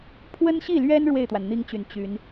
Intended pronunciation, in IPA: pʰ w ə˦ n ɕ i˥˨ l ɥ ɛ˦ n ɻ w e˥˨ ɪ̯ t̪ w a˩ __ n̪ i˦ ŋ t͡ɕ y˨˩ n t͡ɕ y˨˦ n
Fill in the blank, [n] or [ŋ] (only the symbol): n